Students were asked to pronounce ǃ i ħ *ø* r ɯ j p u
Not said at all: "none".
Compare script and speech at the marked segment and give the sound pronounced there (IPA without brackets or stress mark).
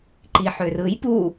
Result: ø